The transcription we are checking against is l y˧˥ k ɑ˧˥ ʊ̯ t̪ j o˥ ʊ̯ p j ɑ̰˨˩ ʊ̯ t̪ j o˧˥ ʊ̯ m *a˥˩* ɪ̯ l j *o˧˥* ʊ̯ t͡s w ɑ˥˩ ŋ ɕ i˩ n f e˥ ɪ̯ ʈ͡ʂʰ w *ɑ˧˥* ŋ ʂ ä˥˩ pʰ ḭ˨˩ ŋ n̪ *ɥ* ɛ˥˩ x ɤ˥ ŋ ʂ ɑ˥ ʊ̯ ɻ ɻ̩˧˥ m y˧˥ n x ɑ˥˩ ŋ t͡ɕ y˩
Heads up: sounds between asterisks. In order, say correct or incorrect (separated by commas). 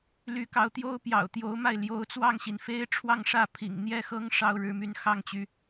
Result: correct, correct, incorrect, incorrect